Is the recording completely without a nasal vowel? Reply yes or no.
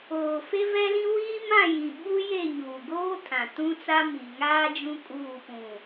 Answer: no